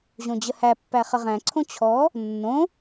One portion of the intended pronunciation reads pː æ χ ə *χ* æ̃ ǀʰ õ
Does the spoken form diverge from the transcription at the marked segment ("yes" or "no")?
yes